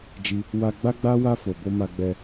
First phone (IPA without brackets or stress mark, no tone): d͡ʒ